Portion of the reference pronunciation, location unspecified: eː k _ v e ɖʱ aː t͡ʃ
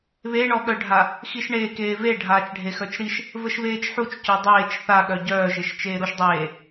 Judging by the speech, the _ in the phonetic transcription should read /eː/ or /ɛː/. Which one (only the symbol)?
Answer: eː